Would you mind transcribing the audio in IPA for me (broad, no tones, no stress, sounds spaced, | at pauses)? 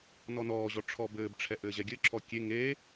n ɔ n ɔː ʑ ɔ ʈ͡ʂʰ ɔ b ɘː b ʈ͡ʂʰ ɛ ʔ ɘː ʑ ɛ ɡʲ ɘ ǁʰ ɔ kʲ e ŋ e